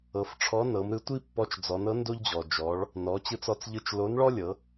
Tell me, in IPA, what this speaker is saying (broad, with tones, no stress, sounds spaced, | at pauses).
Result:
ɤ˩˧ f ʈ͡ʂʰ ɔ˧˥ n ɤ˩˧ m ɾ ɯ˧˥ tʷ i˥ pː ɔ˧˥ t͡ʃ d͡z ɔ˩˧ n ɤ˧˥ n d o˥ ʎ d͡ʑ ɔ˩ d͡ʒ ɔ˩˧ ɭ | n ɔ˩˧ t͡ɕ ɯ˧ t͡s ɔ˧ t͡s ʎ ɯ˧ t͡ʃ l o˧˥ n ɭ ɔ˥ lʲ ɤ˩˧